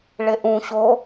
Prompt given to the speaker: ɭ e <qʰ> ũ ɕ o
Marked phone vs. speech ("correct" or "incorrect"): incorrect